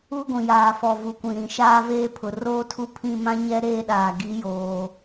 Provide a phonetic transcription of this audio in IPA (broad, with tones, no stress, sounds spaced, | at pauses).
u˦ ɡʷ ĩ˨ j aː˨ f ɔ˨ v u˨ kʷ ĩ˨ ɾ ĩ˨ ʃ aː˦ v eː˦ pʰ ʊ˨ r oː˦ tʰ u˦ pʰ ĩ˦˨ m ã˦ ɲ ɛ˦ ɾ eː˦ ɗ aː˨ ɡ i˨˦ j oː˨